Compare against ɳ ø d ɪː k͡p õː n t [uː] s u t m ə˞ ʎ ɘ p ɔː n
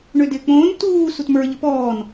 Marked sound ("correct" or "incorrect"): correct